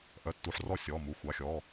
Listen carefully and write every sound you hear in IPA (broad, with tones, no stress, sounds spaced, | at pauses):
ʔ œ˩˧˩ tː u˩˧˩ ħ r ɔ˧˩ sʲ ɔː˩˧˩ m u˩˧˩ xʷ ɑ˩˧˩ xʲ ɔː˩˧˩